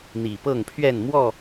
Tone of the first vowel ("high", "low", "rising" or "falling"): low